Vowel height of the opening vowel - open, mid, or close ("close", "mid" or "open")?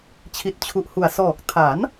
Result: close